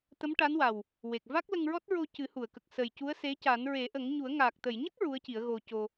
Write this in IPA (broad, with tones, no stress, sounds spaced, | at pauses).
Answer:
t̪ ə˧˥ m ʈ a˧˥ n w a˨˩ w | w e˨˩ k̚ v a˦˥ k̚ l ə˧ ŋ ɹ ɔ˦˥ t̚ ɹ o˧ c ɨ˨˩˦ h u˨˩˨ ə̯ k ə˨˩ k̚ s ə˨˩ j c u˧˥ ə̯ s e˧˥ c a˨˩˦ n ɹ e˨˩˦ ʔ ə˨˩˦ ŋ ɲ u˨˩˦ ə̯ ŋ aː˨˩ k̚ t̪ ə˨˩˨ j ɲ ə˦˥ k̚ ɹ u˧˥ ə̯ c i˨˩˦ ə̯ ɣ o˧ c o˧